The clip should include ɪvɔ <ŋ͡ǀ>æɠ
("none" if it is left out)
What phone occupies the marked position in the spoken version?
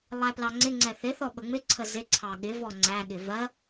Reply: ŋ͡ǀ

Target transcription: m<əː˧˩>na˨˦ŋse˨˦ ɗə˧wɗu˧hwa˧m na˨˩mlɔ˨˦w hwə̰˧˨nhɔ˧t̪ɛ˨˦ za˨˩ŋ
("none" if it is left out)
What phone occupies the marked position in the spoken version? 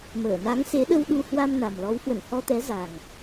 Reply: əː˧˩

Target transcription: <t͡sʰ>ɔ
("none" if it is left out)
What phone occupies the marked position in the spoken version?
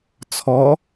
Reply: t͡sʰ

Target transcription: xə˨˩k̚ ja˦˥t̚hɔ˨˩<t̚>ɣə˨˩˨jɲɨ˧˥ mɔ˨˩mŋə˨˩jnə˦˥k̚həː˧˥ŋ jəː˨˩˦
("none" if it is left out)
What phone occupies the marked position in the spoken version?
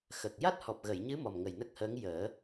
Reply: p̚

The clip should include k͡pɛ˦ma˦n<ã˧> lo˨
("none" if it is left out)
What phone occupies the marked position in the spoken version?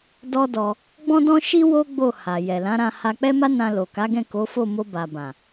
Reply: ã˧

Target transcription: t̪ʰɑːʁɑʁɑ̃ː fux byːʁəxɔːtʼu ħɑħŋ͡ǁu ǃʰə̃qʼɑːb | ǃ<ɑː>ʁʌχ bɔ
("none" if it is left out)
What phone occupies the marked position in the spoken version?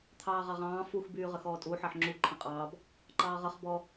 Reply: ɑː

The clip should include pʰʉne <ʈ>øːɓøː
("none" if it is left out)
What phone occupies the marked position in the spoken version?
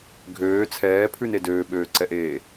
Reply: d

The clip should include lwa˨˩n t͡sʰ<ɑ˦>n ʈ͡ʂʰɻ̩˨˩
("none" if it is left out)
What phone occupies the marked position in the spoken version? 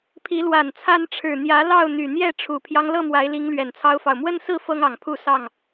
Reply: a˦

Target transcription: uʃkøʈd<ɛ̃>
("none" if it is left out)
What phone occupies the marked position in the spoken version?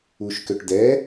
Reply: ɛ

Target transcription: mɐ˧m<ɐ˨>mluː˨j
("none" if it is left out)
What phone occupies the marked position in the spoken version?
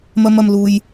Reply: ɐ˨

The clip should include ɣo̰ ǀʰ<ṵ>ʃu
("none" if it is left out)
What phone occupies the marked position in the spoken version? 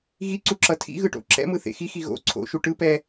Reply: o̰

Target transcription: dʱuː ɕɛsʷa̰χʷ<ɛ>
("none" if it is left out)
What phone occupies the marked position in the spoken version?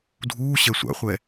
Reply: ɛ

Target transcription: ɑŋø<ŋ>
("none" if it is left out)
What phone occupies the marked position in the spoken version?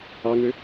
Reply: none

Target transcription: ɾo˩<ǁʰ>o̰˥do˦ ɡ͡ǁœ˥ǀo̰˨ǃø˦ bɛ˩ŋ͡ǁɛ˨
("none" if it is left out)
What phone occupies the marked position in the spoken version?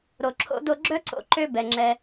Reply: ǁʰ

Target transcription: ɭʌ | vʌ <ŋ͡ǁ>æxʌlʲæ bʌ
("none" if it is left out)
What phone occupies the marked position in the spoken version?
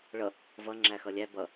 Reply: ŋ͡ǁ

